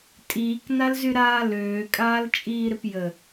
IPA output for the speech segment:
tʼ iː k n a l z y ɾ aː l øː kʼ aː l t͡ʃʼ iː ɾ ɪ p j ə

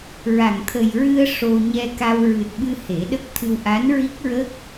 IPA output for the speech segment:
ɹ a˨˩˨ ŋ t̪ʰ ə˨˩ j ɹ ɨ˧ ə̯ ʂ o˧ ɲ ɛ˧ k a˧ w ɹ ɨ˨˩ t̚ ɓ ɨ˧ h e˨˩˦ ɗ ə˦˥ k̚ t̪ʰ ɨ˧ w ʔ a˧˥ n ɹ i˦˥ k̚ ɹ ə˦˥ k̚

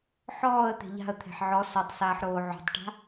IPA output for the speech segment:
ħ ɔː ə̯ t̪ e̤ ʎ a̤ ə̯ t̪ʰ e̤ ħ ʕ ɔ s ɔ tˤ s aː ħ ɾ oː ʕ o̤ tˤ ʈ a̤

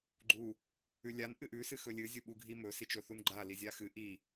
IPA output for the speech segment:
ɡ͡ǃ u | ʉ lʲ a n ʔ ɨ ʔ ʉ s ɨ x ɵ lʲ ɨ zʲ u ɓ u ɡʱ i m ɵ s i t͡ʃ ɵ θ u n ɡ͡ǃ a l i zʲ a x ɨ ʔ i

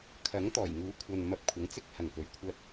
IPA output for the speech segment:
kʰ ɐ˨˥ ŋ t̪ ɔː˨˩ j ŋ uː˨˥ kʷʰ ɐ˨ n m ɐ˧ p̚ kʷʰ ɐ˨˥ ŋ t͡s ɪ˥ k̚ h ɐ˨ ŋ p ɵ˨˥ ɥ kʷʰ ɐ˥ t̚

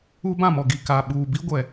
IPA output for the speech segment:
uː˦ b ã˦˨ m ɔ˨ ɡ i˨ k a˨ ɓ uː˨ b i˦ ɡʷ ɛ˨

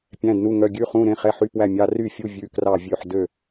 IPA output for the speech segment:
pʲ æ̃˧˥˧ d n u˧˥˧ ŋ œ˧˥˧ ɡʲ ʉ˧˥˧ χ ũ˧˥˧ ɾ ẽ˧˥˧ χ ɛ˧˥˧ ħ y˧˥˧ p w æ˥˨ mʲ ɑ˧˥˧ r y˥˨ fʲ u˧˥˧ vʲ ʉ˧˥˧ k r ɑ˥˨ vʲ ø˥˨ ħ d ø˥˨

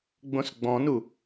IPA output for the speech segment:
ɡ͡b õ s ɡ͡b ɔ̃ n u

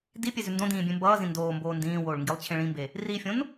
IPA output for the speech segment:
d i pʲ e z ʉ n d õ d ĩː bʲ ẽ m b ʌː z ĩ n d oː m b oː n d ĩː w oː ɭ ŋ ɡ i lˠ t͡ɕʰ ẽ ɭ ĩ m b e | r i fʲ õ n

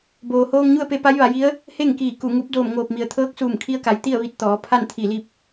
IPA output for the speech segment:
b oː˩ h oː˧ ŋ ɲ u˥˨ ə̯ p e˧ p a˧˥ j ʋ a˩˧ j i˧˥ ə̯ | h e˥˨ ŋ k iː˧˩ k u˧˩ ŋ u˧˥ p̚ d oː˧˩ m ŋ oː˧˩ p̚ m i˩ ə̯ t̪ʰ ɤː˧˥ k̚ s uː˧˩ m kʰ i˧ ə̯ k a˩˧ j t̪ i˥˨ ə̯ ʋ i˧ t̚ t̪ ɔː˩˧ pʰ a˥˨ n t̪ʰ i˧˩ l i˥˨ p̚

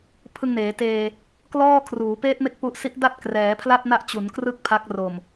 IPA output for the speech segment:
pʰ ɯ˧ ŋ n eː˩˦ t eː˧ | k l ɔː˥˩ kʰ r uː˩˦ p eː˦˥ t̚ m e˦˥ k̚ p u˦˥ ʔ s i˦˥ ʔ d a˥˩ t̚ k r ɛː˩˦ pʰ l a˥˩ t̚ n a˦˥ ʔ t͡ɕ u˩˦ n k r ɯ˥˩ k̚ pʰ a˦˥ k̚ r o˨˩ m

